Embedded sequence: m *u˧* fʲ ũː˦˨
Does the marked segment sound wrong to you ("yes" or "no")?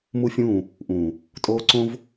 yes